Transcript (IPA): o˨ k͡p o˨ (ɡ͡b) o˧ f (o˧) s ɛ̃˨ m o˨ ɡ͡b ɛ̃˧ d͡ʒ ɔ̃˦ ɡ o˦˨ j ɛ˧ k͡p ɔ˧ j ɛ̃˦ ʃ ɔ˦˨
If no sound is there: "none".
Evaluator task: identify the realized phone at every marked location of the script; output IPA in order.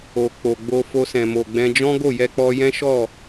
ɡ͡b, o˧

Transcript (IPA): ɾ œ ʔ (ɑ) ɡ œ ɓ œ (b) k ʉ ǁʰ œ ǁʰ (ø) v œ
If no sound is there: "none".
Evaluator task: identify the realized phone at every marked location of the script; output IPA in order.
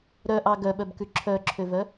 ɑ, b, ø

